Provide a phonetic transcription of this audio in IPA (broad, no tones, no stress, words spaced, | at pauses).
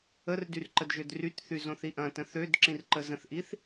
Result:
ərdyr ǃədʒødrytθy zõθiʔɐ̃tə̃ θød ǁĩrǃəzə̃θʔiθ